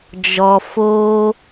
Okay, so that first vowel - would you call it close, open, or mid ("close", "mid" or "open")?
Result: mid